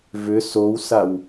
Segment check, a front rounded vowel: present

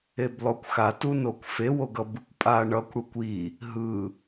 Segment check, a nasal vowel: absent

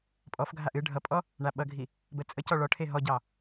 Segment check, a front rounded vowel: absent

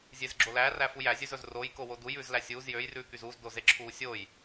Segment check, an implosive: absent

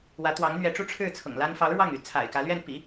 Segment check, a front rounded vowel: present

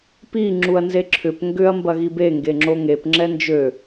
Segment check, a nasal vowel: absent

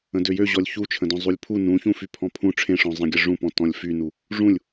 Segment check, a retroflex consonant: present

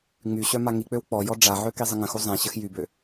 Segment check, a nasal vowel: present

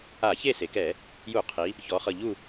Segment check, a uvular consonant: present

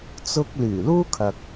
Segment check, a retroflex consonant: absent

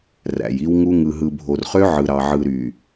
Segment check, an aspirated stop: absent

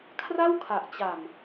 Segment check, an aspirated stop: present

